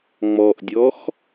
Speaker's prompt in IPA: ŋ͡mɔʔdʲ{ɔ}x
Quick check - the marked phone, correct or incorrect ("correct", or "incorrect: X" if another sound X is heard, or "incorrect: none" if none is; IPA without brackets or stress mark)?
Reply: correct